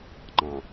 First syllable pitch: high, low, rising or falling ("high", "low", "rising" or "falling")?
low